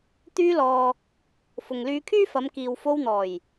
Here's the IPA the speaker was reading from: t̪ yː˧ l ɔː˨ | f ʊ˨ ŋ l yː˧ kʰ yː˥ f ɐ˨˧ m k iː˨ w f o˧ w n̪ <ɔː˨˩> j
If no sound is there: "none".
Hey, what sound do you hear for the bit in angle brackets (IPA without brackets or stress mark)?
ɔː˨˩